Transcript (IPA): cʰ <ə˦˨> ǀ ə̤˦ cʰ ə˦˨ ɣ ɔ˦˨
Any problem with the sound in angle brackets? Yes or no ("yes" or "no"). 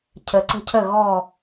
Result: yes